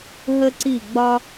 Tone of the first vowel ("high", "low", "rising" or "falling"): high